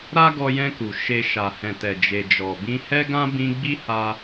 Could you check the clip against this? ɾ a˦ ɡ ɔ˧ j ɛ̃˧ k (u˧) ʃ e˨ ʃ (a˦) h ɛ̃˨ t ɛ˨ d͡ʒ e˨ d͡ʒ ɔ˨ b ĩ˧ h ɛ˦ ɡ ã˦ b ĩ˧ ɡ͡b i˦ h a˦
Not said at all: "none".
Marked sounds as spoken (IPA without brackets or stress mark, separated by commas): u˨, a˨